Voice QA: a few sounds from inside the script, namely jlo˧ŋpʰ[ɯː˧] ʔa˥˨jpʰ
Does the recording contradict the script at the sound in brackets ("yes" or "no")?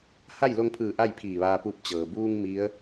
yes